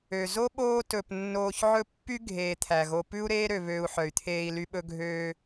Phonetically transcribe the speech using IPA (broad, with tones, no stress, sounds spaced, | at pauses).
ø˩ z o˥ ɓ oː˦ t ɵ˩ p nː oː˨ ç ʕ ɵ˦ pː y˥ ɡʱ eː˩ t̪ʰ æ˩ ɣ o˨ p ʉ˦ u̯ ɾ eː˦ ɾ ø˨ β øː˨ u̯ ħ œ˩ y̯ t̪ʰ eː˨ i̯ l y˨ ɓ ɵ˨ ɡʱ øː˨